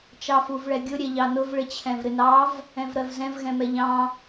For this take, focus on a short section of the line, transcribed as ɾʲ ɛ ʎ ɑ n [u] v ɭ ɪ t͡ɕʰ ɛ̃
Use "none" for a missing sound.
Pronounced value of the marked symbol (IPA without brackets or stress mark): ʊ